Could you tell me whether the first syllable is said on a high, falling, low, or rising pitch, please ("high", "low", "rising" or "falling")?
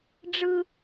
high